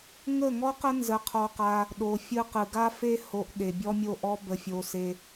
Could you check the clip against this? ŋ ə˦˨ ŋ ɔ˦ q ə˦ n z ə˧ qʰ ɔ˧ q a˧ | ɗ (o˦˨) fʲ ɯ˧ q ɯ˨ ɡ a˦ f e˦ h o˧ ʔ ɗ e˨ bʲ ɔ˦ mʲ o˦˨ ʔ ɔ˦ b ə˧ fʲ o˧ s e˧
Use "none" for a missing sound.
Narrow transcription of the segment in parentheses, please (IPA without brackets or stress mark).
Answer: o˨